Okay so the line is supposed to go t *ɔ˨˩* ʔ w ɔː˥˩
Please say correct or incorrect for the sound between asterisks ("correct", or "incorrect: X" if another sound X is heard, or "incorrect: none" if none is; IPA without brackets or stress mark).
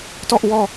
incorrect: ɔ˥˩